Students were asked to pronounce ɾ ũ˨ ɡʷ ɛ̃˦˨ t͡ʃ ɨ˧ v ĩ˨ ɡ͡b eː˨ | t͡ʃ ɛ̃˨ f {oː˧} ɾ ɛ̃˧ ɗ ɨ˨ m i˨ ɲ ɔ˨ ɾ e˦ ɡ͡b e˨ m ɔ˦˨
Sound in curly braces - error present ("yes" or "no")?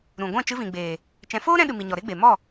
yes